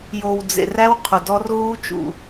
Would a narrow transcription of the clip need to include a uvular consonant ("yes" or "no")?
yes